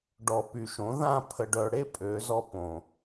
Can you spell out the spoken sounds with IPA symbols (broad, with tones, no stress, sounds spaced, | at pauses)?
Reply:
ɖ ɔ˨ p y˨ ʃ õ˨˦ ð ã˦˨ pʰ ə˨ ɖ œ˨ ɽ e˦ pʼ ø˨˦ z ɔ˦ p õ˨